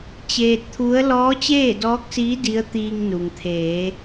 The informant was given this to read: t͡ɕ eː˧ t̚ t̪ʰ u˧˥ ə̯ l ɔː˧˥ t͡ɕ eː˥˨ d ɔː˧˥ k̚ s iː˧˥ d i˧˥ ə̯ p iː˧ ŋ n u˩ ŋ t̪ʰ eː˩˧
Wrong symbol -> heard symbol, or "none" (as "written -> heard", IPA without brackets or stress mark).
p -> t̪